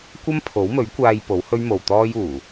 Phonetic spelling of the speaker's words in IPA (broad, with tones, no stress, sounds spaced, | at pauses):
kʷ ɐ˥ m pʰ o˨˥ w m ɵ˨˥ ɥ kʷ aː˧ j p o˨˥ w h ɵ˥ ɥ m o˨ w t̪ ɔː˥ j uː˨˩